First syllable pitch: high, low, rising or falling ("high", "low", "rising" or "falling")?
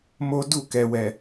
high